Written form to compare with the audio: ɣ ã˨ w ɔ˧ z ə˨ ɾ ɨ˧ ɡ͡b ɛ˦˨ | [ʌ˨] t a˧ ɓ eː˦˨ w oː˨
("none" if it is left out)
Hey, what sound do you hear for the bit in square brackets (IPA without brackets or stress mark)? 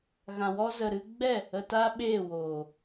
ə˨